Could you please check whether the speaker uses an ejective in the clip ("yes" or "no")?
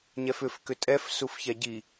yes